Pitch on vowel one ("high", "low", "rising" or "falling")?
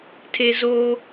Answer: high